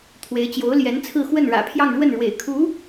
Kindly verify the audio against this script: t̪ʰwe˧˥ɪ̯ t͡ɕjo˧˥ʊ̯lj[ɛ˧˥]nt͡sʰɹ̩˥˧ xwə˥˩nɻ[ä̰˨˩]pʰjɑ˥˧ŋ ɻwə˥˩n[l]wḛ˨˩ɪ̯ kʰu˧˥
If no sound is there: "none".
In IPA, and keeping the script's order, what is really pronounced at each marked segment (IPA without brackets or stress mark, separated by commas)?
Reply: ɛ˧˥, ä̰˨˩, ɻ